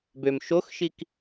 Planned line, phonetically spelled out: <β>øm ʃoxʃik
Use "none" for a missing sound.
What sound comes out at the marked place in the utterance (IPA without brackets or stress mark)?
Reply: b